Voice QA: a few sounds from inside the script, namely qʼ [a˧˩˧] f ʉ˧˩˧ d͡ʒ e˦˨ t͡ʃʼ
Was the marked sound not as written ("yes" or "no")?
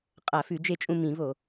yes